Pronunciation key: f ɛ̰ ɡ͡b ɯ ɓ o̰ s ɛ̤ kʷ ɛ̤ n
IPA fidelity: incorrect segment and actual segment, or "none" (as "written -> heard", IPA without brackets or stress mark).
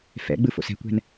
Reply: ɓ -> f